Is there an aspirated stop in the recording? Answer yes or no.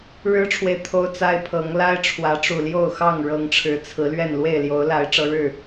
yes